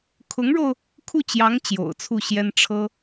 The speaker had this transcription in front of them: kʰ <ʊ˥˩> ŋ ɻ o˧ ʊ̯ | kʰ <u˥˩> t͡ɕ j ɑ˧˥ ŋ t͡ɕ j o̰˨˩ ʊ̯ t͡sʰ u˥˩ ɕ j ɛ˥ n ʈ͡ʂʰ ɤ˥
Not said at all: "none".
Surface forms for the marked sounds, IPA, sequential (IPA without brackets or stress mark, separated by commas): ʊ˧˥, u˥˩